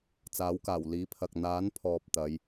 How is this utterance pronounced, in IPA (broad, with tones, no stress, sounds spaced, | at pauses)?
t͡s aː˨˥ w k aː˨˩ w l iː˨˥ pʰ ɐ˨ k̚ n̪ aː˨˥ n pʰ ɔː˨ p̚ t̪ ɐ˨˧ j